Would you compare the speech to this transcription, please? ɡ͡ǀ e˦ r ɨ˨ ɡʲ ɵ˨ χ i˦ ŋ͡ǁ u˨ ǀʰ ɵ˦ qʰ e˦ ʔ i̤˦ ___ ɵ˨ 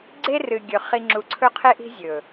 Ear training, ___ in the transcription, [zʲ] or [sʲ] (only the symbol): zʲ